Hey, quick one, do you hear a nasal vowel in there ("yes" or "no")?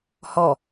no